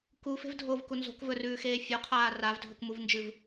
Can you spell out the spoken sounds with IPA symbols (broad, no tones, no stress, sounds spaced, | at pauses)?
k u f e̤ v dʱ o v k u n z o̤ k v ɵ r ʉː x eː fʲ o qʰ aː r a v dʱ ɵ k m u v n d͡ʒ ɨ v